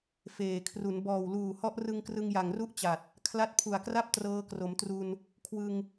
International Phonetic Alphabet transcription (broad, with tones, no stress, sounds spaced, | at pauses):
f eː˨˩ kʰ r u˩˦ n b ɔː˨˩ w l uː˨˩ h ɔ˦˥ ʔ r ɯ˧ ŋ k r ɯ˧ ŋ j a˨˩ ŋ r u˥˩ ʔ t͡ɕ a˨˩ t̚ | kʰ l a˦˥ t̚ pʰ u˨˩ a̯ k r a˥˩ p̚ t r ɤː˧ k r o˩˦ m t r u˧ n | kʰ w ɯ˧ ŋ